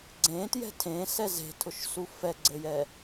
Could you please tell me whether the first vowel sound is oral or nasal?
nasal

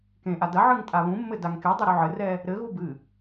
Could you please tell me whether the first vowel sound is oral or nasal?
nasal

